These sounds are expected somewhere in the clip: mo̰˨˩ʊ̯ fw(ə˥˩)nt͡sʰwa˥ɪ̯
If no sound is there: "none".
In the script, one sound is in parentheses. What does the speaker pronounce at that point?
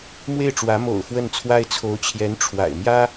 ə˥˩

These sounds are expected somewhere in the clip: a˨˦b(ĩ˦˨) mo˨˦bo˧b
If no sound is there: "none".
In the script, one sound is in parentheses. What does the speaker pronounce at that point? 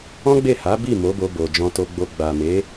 i˦˨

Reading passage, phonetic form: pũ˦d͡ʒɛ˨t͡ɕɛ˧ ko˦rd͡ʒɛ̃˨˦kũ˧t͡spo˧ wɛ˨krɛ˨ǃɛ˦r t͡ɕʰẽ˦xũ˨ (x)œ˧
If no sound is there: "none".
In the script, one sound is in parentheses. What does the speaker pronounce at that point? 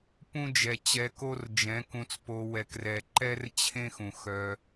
x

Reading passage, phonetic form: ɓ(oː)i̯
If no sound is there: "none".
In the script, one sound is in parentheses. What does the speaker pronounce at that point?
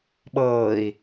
ɤː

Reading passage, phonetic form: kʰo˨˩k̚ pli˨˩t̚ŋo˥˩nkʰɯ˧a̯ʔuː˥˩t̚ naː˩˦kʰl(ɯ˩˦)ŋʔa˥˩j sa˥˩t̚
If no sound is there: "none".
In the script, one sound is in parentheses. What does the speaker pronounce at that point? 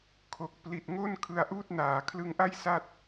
ɯ˦˥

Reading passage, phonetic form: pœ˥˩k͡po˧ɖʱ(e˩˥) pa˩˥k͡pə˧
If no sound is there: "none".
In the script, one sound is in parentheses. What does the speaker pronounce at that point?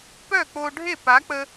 e˥˩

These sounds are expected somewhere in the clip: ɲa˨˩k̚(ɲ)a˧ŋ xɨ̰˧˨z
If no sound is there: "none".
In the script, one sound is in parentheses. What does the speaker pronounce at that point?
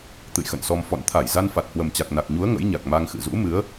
m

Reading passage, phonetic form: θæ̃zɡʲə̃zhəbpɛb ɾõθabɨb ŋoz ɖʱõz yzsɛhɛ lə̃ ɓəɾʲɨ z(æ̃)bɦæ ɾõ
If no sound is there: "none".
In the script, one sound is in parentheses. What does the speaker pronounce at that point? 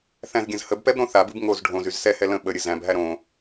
æ̃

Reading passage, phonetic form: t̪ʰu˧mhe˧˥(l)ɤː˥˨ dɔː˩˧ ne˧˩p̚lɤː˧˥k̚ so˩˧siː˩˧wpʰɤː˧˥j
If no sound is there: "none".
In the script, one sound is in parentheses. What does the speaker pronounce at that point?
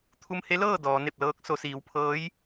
l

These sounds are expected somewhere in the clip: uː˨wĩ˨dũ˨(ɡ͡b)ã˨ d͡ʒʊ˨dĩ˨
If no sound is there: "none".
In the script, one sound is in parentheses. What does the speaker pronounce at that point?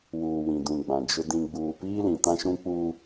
ɡ͡b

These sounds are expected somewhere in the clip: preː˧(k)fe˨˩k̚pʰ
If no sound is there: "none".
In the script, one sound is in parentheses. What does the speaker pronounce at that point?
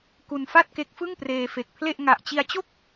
none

